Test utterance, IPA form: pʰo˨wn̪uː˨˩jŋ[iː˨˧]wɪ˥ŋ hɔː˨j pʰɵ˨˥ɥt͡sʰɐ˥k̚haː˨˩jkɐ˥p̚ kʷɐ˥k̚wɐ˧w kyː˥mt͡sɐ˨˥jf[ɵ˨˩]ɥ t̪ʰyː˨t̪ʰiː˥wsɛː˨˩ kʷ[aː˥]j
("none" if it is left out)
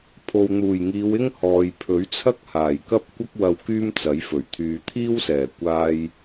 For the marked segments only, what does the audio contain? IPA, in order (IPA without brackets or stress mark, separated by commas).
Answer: iː˨˧, ɵ˨˩, aː˥